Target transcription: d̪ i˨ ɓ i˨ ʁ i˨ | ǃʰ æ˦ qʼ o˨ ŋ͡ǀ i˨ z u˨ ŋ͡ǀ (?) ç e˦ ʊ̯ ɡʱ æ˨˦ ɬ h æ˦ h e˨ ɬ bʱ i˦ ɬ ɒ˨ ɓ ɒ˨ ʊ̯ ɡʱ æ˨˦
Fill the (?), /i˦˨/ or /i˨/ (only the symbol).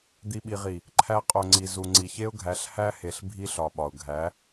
i˨